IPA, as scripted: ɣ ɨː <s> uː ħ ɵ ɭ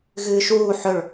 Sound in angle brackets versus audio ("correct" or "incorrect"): incorrect